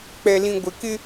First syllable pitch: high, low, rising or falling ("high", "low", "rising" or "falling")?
low